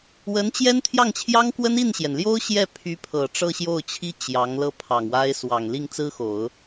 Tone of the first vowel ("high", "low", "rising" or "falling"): rising